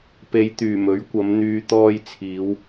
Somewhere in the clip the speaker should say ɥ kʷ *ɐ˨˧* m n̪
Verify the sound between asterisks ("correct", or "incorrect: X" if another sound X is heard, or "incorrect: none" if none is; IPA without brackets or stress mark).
correct